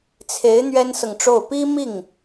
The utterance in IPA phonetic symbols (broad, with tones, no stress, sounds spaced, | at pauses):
t͡sʰ e˧˥ ɪ̯ n̪ ɥ ɛ˥ n s ɤ˨ ŋ ʈ͡ʂ o˥˩ ʊ̯ p i˥ m i˥˩ ŋ